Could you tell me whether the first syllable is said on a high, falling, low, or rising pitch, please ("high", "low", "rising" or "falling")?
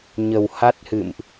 low